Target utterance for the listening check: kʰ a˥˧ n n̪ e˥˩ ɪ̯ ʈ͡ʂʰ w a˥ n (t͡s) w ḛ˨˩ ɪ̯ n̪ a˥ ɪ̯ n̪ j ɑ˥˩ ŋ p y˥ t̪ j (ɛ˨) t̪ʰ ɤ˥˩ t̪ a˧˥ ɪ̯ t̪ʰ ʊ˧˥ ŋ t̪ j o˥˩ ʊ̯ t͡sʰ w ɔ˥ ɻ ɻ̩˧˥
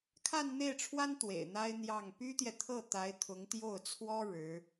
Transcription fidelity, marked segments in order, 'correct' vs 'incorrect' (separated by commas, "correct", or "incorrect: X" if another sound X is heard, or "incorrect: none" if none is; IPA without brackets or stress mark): incorrect: t̪, correct